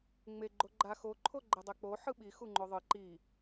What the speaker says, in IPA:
ŋ͡me ɡ͡ǃoɡ͡ǃa xoǃʰo ɡ͡ǃɛdˤɛk͡po ħɯɓi xuŋ͡ǃoðˤɯ ǃi

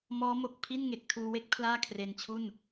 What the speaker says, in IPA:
mɔː˦˥mo˨˩k̚ pʰi˥˩nŋe˨˩k̚tʰuː˧we˥˩k̚ pʰlaː˥˩ kʰre˧nt͡ɕʰu˥˩n

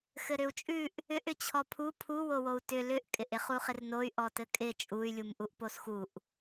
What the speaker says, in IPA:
xɘɾʏu̯t͡ʃʼʉʔ | ʏʔ ʏt͡ɕʰɔpʰu pʰuwowou̯ tʏ lʏʔkʼɪʔ ɪχuχɪrnoy̯ ʔɔtɘkʼɪ t͡ʃʼuy̯lʲum ʔuʔposxuʔ

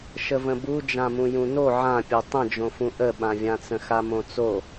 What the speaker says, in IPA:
ʃəvə̃bu d͡ʒãmũjũno ʕãpʲo tˤə̃d͡ʒõfũ ʔəɓãvʲãt͡sə̃ xamõt͡so

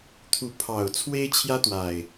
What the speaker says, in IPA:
t̪ʰu˨˦pʰɑ˨˩ʊ̯ t͡sʰwe˦ɪ̯t͡ɕʰjä˦t̪wa˨˩ɪ̯

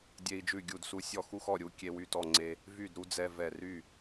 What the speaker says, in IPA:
dʲe˦i̯d͡ʒʉ˥˨ɡʲu˥˨d su˦sʲɔ˦ xu˦xɔ˥˨ ɾʲu˦kʲe˦wy˥˨tɔ˥˨ ŋ͡ǀe˦ | vy˥˨dɾu˦ d͡zɛ˦vɛ˥˨ ry˥˨

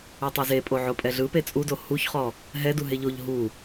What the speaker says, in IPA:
etˤeze pʼoʕopʼɛɮɯ pet͡sʼudo huçχɔ | ɦɛdu ɦeʎoʎ ɦu

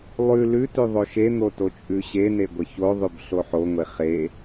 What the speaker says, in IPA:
lˠʉ lʉtʉ ðˤoʃen̪o tot͡ʃʼʉɕene ɡʷəçoðˤʉb ɬoħoŋʷe χe

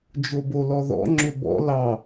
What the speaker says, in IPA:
d͡ʒobolɔðɔ̰ ŋ͡ǁʏbɔ̰ lɑ

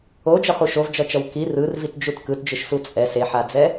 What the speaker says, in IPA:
od͡ʒʌχu ʃovd͡ʒʌt͡ʃʌw ki rɯrvitd͡ʒut kɯtd͡ʒɯʃsu t͡sʼɛs eħad͡zɛ

